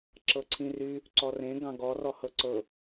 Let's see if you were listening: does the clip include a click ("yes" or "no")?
yes